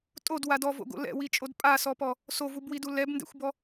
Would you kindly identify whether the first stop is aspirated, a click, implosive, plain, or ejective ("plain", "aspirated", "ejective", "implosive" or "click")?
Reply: ejective